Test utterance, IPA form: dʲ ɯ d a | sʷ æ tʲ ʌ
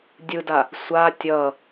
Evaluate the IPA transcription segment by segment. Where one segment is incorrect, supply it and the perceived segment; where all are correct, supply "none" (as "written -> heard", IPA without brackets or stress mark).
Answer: æ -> a